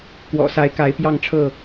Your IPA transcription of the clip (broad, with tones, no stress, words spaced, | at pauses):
kwɔ̰˨˩sa˨˦ɪ̯ka˨˦ɪ̯ pjɑ˥˨ŋʈ͡ʂʰɤ˥˨